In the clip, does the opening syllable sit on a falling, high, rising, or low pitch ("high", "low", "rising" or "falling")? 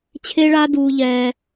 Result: high